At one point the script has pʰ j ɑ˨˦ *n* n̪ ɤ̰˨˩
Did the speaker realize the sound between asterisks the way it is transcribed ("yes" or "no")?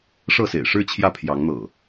no